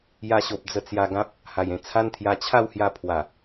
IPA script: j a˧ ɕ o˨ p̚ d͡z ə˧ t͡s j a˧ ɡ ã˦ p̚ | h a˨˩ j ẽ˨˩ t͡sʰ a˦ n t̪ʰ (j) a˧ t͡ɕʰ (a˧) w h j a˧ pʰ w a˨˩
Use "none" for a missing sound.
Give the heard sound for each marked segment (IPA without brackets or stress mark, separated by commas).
j, a˥˧